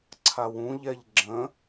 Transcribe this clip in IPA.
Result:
ǀʰ a w ũ ʎ ɛ ʎ ɡ͡ǁ ə̃

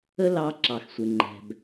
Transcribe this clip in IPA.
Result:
ə˥ l ɑ˧ ǁ ɑ˩ x sʷ ɪ˩ ŋ͡ǃ ɛ̤˩ b

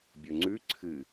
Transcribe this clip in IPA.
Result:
bʲ ɵ ŋ͡ǀ ʉ ǀʰ ɨ

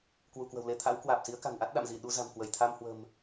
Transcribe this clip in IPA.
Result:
k w u˧˩ k w ə̤˨˩ w l e˧ t̪ʰ a̰˧˥ w k w aː˨˩ p̚ s i˨˦ ə̯ k a̤˨˩ n ʔ a˦˥ t̚ ɗ a̰˧˨ m z i˧˩ ɗ u˧ z a̤˨˩ m k w ə˧˩ j t̪ʰ a˧ m h w ə̤˨˩ m

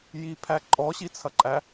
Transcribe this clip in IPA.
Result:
j i pʰ æ ǃʼ ɔ ɕ i t͡sʰ ɐ ǃʼ æ

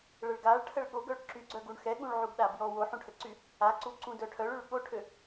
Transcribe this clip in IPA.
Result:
ɭ ə ɭ ɡ a ɭ ʈʰ ə ɭ ɠ o ɡ œ ɭ ǁ y ɡ͡ǀ œ ɡ u ɳ x ɛ ɠ ũ ɭ ʕ u ɡ ɗ a b j ɔ w o ħ ũ ʈʰ ə ǀ y | a ǀ u ǀ ũ d œ ʈʰ œ ɭ y ɭ ɠ o ʈʰ ø

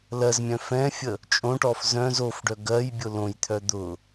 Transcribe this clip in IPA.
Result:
l ɜ z mʲ œ̃ f ɛ̃ fʲ ə | t͡ʃʼ õ ʈ ɔ f z œ̃ z o f ɖ œ ɡ ɜ j bʲ ʊ l õ j t̪ʰ œ d̪ ʊ

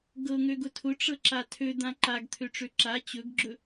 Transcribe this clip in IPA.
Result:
ɡ ɤ ŋ ø ɡ ʊ tʰ ʊ ʈ͡ʂ ɤ ǁ a tʰ ø d̪ ã ǃ a ɡ t̪ʰ ø ʈ͡ʂ ø ǁ a t͡ɕ ɵ ɡ ɡ͡ǁ ɵ

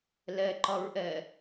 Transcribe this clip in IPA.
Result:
l ɛ ǃ ɒ ɹ ʔ ɛ

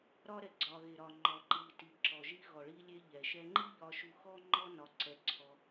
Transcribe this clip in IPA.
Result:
ɾ ɒ˧ ɾ ɛ˩ ɡ͡ǀ ɒ˩ ɣ e˩ ɾ ɒ˩ ŋ͡ǃ ɔ˩ ǃ i˩ t i˩ ǁ ɔ˩ ʒ i˧ ɣ ɔ˩ ɭ i˧ lʲ e˧ ʎ ɛ˩ ʃ ɛ˧ ŋ͡ǃ i˥ ʎ ɒ˧ ʃ u˧ x ɔ˥ ŋ͡ǃ ɔ˥ n ɒ˧ ǀ ɛ˧ ǀʰ ɔ˧

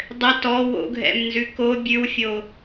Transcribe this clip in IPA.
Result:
dˤ ɘ t ɔ w o̰ ɡʱ ɛ̰ m n z ʉ k o bʲ ʉ w fʲ o

